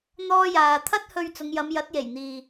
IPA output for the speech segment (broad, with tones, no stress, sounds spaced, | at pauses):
n̪ ɔː˥ j aː˧ t̪ʰ ɐ˥ t̚ h ɵ˧ ɥ t͡s ʊ˨˧ ŋ j ɐ˨˧ m j ɐ˨˥ t̚ j e˨˩ j n̪ iː˨